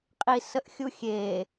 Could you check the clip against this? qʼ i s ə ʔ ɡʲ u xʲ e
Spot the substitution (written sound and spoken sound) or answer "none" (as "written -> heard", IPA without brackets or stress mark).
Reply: ɡʲ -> xʲ